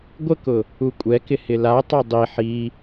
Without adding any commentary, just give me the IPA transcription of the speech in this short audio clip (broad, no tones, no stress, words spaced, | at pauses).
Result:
ɡʷəkʊ | ukʷʼɛkɪ hɪlatˤa dˤi ħi